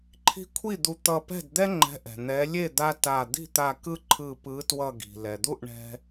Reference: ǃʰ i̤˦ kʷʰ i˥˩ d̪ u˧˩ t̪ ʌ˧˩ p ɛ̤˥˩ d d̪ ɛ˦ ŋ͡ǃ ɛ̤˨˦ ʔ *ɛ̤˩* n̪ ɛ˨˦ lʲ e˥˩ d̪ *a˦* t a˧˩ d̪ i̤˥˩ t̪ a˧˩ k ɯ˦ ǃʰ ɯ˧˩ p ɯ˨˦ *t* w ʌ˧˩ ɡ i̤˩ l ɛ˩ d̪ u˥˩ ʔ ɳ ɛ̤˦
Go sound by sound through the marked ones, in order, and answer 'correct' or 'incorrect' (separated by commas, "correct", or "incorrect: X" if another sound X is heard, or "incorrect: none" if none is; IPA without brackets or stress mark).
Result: correct, correct, correct